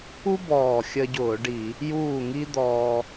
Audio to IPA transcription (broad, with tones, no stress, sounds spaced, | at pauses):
u˥ b ɔː˨˩ xʲ ə˧ ɟ ʊː˧˩˧ ɖ i˧˩˧ | j uː˥˨ ŋ i˥ d̪ ɔː˧